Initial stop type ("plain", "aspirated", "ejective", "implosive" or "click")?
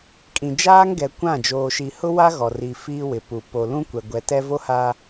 ejective